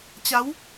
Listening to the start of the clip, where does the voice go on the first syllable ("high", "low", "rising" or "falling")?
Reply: rising